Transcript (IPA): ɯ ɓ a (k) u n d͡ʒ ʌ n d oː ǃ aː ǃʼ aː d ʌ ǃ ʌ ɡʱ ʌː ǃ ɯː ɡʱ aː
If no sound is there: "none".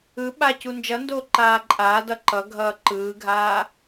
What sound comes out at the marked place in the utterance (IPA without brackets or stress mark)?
c